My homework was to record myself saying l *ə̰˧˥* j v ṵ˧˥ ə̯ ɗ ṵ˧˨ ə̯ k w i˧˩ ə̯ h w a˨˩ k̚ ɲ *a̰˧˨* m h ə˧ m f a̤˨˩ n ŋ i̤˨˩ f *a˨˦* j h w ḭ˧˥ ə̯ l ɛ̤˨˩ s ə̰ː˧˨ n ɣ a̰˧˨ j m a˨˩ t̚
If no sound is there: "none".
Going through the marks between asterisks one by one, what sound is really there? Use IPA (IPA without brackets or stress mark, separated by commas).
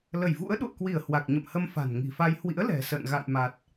ə˧˩, ə̰˧˨, a˧